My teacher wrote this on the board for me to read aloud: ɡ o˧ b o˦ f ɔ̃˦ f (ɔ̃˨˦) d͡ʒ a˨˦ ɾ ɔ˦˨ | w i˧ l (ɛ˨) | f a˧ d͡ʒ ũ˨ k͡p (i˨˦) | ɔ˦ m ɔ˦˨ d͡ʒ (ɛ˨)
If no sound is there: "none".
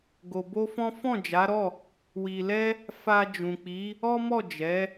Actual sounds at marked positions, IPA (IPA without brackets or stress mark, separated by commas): ɔ̃˦˨, ɛ˦, i˨˦, ɛ˨˦